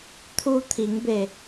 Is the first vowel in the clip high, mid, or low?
high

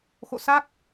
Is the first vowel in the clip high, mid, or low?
mid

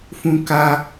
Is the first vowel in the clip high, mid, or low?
high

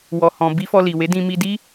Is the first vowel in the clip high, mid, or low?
mid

